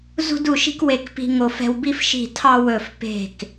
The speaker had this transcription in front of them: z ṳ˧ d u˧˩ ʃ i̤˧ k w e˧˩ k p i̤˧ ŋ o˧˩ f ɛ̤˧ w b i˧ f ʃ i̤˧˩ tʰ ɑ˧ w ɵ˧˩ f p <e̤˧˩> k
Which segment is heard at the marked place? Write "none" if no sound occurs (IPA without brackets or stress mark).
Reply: e̤˧˩